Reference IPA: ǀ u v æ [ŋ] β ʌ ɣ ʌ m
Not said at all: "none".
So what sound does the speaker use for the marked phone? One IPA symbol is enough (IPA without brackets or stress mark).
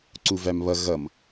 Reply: m